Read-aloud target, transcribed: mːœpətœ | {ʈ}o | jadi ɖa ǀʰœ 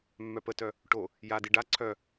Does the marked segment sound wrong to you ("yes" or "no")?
no